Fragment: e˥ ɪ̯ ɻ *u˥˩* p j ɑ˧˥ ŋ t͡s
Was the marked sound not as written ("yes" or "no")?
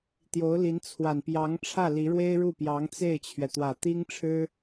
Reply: no